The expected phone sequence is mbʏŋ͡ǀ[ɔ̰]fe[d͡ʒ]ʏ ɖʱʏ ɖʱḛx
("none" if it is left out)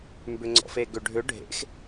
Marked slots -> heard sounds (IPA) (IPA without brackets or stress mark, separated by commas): ɔ̰, ɡ